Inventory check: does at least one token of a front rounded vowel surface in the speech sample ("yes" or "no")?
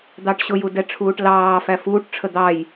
no